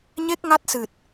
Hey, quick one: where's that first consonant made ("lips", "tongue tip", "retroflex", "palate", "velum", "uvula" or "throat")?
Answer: palate